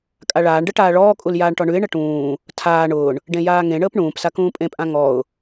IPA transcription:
kʼ a ɭ aː ɳ ɖ ə ʈ aː ɭ ɔː kʼ u l j aː ɳ ʈ ɔ ɳ ʉ ɪ̯ ɳ ə ʈ ũː | tʰ aː ɳ ʊː ɳ | ɖ ẽ j aː ŋ ẽ ɳ əː p ɳ ũː p s a k ũː pʼ ẽ pʼ ã ŋ ɔ ʊ̯

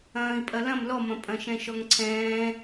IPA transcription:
ɐ̃ː i̯ pʼ ɐ l ɐ̃ m l ɔ m ɐ̃ pʼ ɐ̃ ʃ ɛ̃ ʃ ɔ ŋ ǀʰ ɛ̃ː

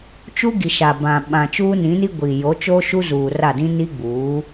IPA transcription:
t͡ʃ u˦ ɡ i˨ ʃ a˨ b ã˨ ɓ ã˨ t͡ʃ uː˦ n ĩ˨˦ n i˦ ɡʷ i˨ j o˨˦ t͡ʃ o˦ ʃ u˦ z uː˨ r a˦˨ d ĩ˦ n i˦ ɡ͡b uː˨˦

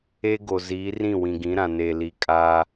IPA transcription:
e˦ ɡ o˨ z iː˨˦ r ĩ˦˨ w ĩ˨ ɡ ĩ˨˦ ɾ ã˨ n e˨ l i˨ kʼ a˦

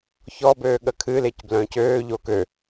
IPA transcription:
ç ɔ b øː ɠ ə kʰ ɨ l e c b l œ̃ː c øː ʎ o k ø

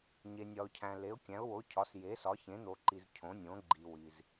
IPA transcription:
ɲ e˨ nʲ ɒ˨ ʊ̯ cʰ æ̃˨ l e˨˦ ʊ̯ kʲ æ̃˨˦ ʊ̯ w o˨˦ cʰ ɒ˨˦ s j e˨˦ s ɒ˨˦ ç ẽ˨˦ n̪ o˨ ǃ i˨ z cʰ õ˨˦ nʲ õ˨˦ ɡ͡ǃ i˨ w i˨ z

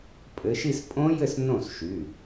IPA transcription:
pʼ ɘ˨˦ ʃ i˥˧ s pʼ õ˦˥ j ɘ˥˩ s n õ˥˩ s ʃ y˩˧˩

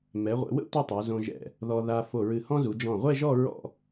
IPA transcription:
m ɛ˩˧ ʁʷ ɛ̰˩˧ w ə̰˥˧ tʷ ɛ˥˧ tˤ o˩˧ z õ˧ ʒ ɛ̰˧˩ | ð ɔ˧ ð a˧ f o˧˩ ɹ ɨ˧˩ h ɔ̃˥ z u˩˧ d͡ʒ ɔ̃˧˩ ʁʷ ɛ˥˧ ʒ ɔ˥˧ ɹ ɔ̰˥˧

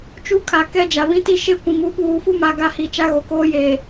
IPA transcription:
t͡ʃ u˦ kʰ a˨ k ɛ˦ d͡ʒ a˨ β ĩ˦ t i˦ ʃ e˦ kʷ ĩ˨ m u˦ ɓ uː˨ f u˦ m a˨ ɡ a˦˨ h i˨ t͡ʃ a˦ ɣ o˨ k oː˦ j e˨

